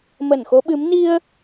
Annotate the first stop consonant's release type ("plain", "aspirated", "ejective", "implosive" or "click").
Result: implosive